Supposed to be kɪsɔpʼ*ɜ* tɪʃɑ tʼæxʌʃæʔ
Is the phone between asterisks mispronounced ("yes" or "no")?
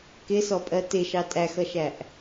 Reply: no